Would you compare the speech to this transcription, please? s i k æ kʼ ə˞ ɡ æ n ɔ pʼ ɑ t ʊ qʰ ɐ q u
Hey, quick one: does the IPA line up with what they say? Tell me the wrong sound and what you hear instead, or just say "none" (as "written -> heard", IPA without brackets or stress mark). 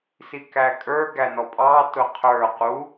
ɐ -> ə˞